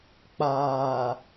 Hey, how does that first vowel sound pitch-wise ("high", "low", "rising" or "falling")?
low